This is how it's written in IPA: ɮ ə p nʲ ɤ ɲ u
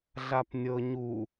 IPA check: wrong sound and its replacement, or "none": ə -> a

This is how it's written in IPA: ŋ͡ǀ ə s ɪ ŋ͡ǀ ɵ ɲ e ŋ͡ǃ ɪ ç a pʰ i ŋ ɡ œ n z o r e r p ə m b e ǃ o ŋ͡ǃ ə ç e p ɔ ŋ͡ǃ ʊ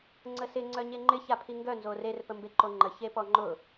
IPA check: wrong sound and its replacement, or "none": ɵ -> œ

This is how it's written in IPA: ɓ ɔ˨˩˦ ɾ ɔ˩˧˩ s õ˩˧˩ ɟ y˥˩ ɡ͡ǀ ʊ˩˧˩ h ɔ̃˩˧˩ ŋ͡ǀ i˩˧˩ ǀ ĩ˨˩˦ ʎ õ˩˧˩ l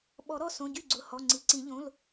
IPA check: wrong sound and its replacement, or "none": ɔ̃˩˧˩ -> ɔ˩˧˩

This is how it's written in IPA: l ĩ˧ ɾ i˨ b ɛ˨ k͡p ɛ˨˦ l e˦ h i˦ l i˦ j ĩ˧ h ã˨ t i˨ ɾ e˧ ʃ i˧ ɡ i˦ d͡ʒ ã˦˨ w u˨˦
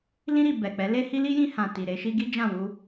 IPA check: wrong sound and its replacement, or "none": u˨˦ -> u˧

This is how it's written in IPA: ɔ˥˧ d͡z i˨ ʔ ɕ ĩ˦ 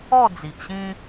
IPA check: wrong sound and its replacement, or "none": none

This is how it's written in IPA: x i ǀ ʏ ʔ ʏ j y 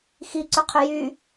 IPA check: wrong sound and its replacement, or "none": ʔ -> qʰ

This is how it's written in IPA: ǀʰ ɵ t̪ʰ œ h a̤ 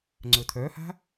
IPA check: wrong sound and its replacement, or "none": ǀʰ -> ŋ͡ǀ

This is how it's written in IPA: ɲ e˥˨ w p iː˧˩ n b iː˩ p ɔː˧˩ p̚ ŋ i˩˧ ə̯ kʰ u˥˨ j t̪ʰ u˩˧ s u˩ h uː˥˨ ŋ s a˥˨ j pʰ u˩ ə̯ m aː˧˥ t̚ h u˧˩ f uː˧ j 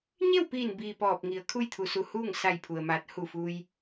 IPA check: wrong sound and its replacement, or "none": none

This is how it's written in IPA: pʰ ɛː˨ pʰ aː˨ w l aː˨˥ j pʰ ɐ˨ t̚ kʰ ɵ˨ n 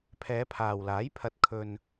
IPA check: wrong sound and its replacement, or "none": ɛː˨ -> ɛː˨˧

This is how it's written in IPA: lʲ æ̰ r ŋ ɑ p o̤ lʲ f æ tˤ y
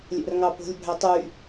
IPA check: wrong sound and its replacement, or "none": f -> bʱ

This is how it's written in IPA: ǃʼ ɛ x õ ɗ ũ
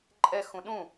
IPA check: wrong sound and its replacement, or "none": õ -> ũ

